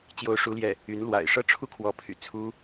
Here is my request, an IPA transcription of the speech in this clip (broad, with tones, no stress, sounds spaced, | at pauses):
t͡ɕ j o˥ ʊ̯ ʂ u˥ l j ɛ˥˩ | y˧˥ n l w a̰˨˩ ɪ̯ ʂ ɤ˥˧ ʈ͡ʂʰ u˥˩ kʰ w ɔ˧˥ pʰ y̰˨˩ t͡sʰ u˥